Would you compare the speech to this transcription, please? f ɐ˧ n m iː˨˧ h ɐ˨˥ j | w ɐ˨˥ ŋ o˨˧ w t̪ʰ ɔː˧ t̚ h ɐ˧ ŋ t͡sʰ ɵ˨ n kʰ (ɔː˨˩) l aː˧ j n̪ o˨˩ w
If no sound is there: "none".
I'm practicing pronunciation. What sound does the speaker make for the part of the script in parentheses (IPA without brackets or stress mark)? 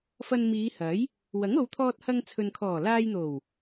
ɔː˨˩